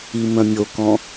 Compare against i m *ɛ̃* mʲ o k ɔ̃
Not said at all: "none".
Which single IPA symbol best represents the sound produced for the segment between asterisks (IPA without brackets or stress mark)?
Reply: œ̃